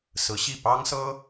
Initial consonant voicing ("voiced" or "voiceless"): voiceless